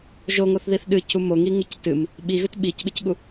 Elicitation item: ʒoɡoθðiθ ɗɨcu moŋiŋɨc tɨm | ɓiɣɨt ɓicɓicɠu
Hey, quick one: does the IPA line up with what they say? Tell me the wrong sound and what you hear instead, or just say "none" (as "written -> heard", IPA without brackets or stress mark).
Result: ɡ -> ŋ